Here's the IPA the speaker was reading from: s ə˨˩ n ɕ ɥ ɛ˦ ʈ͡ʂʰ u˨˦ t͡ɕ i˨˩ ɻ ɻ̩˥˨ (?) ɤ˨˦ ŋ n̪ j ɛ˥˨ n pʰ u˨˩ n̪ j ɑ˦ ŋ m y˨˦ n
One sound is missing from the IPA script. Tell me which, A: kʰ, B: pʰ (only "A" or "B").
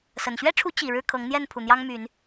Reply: A